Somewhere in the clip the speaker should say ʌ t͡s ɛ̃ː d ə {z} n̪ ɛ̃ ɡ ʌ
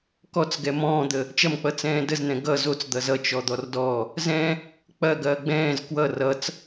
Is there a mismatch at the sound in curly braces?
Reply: no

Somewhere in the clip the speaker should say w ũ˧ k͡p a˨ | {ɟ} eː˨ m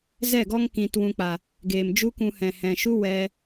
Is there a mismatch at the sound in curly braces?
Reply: yes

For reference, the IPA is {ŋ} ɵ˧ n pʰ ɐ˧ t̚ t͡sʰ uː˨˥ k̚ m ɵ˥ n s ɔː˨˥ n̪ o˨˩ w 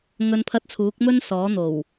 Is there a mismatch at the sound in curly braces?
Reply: no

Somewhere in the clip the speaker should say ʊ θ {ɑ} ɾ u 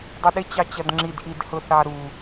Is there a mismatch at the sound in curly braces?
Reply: no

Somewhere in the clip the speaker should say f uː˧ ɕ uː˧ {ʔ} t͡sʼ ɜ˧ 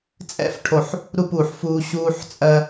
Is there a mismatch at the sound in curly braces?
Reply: yes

